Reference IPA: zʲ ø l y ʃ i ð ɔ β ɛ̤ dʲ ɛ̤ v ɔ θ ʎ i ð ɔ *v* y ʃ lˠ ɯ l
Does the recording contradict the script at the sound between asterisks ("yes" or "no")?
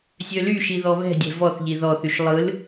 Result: yes